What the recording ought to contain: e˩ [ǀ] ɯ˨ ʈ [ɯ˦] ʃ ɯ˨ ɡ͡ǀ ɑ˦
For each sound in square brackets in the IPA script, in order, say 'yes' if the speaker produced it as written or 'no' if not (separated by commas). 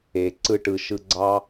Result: yes, no